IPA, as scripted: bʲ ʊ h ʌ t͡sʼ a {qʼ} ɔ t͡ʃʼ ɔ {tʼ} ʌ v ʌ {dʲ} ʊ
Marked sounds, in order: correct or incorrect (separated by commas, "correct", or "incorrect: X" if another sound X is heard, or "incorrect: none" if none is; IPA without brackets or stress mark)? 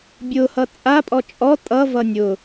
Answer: incorrect: pʼ, correct, incorrect: nʲ